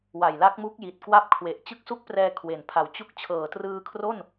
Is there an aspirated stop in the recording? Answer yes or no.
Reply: yes